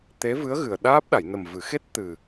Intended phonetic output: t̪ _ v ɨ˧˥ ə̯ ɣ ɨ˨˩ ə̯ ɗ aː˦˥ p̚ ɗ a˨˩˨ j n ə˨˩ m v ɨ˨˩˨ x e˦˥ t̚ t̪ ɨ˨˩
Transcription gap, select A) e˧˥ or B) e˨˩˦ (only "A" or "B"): A